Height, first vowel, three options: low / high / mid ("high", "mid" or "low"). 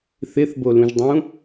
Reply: high